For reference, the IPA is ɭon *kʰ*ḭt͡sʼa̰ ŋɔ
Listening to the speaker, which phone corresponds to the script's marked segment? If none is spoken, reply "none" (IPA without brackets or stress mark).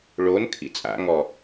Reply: kʰ